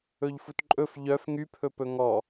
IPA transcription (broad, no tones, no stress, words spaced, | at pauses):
ɵʎfutǃʼɵf ʎœf ŋypʰɵpɵ ŋɔ